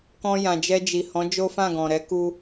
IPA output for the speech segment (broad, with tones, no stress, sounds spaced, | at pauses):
k ɔ̃˧ j ã˨ d͡ʒ ɛ˧ d͡ʒ i˨ h ɔ̃˨˦ d͡ʒ o˦ f ã˦˨ ɡ ɔ̃˨ ɾ ɛ˨˦ k u˧